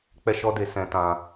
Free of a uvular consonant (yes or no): yes